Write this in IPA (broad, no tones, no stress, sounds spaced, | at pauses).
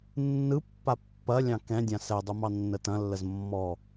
nː ɯ pː a pː ɐ lʲ ɑ̃ k ɛ̃ dʲ ã s ɛ dˤ u m ɑ nː ə t ɐ̃ lː ə z mː ɔ